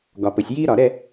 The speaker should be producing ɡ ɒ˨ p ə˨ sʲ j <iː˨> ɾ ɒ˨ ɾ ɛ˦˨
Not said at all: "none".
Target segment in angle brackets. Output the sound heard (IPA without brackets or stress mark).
iː˦